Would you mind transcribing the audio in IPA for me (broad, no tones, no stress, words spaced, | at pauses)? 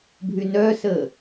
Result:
bʱynœsəː